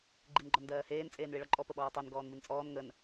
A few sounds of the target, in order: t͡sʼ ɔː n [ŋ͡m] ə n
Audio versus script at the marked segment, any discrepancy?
yes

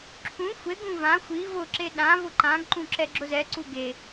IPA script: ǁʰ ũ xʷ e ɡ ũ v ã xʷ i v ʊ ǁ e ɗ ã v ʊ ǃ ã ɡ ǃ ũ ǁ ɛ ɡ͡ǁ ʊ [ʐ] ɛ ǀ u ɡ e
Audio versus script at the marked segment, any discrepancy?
yes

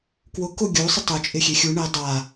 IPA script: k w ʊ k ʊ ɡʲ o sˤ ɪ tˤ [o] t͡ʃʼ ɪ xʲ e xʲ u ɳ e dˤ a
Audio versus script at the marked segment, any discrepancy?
no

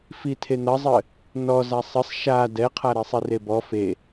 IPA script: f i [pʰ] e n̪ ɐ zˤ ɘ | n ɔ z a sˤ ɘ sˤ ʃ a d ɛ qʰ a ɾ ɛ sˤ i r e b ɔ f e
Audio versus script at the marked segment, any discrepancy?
yes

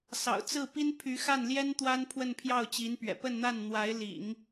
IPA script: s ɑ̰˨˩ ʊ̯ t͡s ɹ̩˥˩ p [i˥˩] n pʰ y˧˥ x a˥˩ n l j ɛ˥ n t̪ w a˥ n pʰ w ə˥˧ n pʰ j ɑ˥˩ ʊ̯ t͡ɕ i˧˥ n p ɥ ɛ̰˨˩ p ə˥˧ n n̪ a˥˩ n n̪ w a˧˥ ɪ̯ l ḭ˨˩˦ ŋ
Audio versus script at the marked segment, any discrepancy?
yes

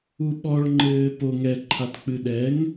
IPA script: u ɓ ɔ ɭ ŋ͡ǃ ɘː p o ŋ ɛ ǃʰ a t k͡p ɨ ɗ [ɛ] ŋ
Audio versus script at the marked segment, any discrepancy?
no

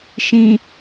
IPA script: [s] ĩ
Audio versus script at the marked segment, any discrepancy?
yes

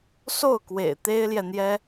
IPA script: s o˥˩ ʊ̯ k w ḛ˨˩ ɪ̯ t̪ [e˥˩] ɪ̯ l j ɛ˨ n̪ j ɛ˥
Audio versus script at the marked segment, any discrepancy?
yes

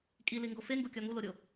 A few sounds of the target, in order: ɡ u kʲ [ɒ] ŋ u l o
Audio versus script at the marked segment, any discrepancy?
no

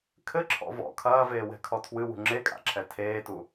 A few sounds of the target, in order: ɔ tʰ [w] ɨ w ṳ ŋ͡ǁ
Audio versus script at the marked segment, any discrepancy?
no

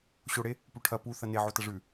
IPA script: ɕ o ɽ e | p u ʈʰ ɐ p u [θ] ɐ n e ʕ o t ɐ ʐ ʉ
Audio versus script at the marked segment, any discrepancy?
no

